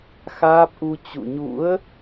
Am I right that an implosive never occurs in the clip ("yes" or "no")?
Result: yes